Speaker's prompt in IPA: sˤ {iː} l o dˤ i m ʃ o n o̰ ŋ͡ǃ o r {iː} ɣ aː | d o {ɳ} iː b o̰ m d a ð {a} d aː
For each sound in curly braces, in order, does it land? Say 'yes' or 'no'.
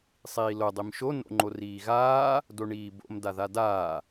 yes, yes, yes, yes

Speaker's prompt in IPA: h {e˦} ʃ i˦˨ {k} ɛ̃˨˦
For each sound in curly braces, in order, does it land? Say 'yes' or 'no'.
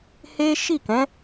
yes, yes

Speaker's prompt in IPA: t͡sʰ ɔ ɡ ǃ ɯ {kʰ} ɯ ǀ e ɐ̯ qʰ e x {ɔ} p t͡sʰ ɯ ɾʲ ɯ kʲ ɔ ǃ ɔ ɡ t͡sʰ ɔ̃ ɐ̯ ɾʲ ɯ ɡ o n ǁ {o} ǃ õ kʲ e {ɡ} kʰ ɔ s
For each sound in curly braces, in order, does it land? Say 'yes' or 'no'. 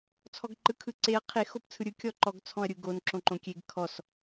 yes, no, no, yes

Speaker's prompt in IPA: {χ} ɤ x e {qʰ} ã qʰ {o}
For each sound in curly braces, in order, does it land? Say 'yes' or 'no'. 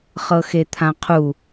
yes, no, no

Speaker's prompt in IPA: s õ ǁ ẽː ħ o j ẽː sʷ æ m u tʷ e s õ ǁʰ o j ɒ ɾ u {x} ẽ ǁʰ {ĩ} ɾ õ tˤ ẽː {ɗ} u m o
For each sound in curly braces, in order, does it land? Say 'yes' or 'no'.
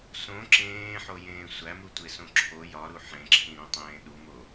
no, yes, yes

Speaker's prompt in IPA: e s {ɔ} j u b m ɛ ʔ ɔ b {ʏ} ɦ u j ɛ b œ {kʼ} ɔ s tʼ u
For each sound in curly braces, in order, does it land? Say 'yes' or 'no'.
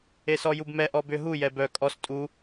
yes, yes, yes

